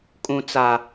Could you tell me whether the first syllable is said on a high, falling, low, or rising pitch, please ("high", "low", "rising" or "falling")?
low